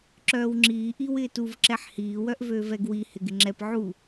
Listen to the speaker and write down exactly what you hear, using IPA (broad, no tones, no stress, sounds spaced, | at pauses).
ǁ œː w ŋ͡ǁ iː ʔ i w ɪː t u v ǁ ɛ ħ h iː w œ ʔ v øː v ɛ ɡ w i h ɪ ɡ ɪ ŋ͡ǁ ɛ p ʕ u